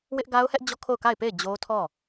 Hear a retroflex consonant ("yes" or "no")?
no